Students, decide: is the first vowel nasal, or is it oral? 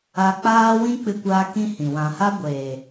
oral